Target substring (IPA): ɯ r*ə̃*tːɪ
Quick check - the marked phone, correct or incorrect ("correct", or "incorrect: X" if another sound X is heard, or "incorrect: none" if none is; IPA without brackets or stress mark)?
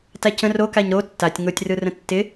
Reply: correct